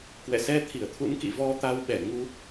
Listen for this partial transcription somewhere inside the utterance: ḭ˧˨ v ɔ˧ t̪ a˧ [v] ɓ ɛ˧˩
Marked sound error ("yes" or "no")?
yes